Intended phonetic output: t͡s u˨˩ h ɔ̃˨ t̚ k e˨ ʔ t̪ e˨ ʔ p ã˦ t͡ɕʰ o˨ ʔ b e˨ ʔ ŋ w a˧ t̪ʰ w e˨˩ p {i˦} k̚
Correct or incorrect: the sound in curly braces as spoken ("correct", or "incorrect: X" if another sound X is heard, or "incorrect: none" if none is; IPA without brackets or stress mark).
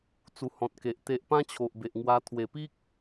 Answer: correct